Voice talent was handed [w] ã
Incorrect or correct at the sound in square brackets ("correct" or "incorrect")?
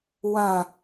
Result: correct